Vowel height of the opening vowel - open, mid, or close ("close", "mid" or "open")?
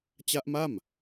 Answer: open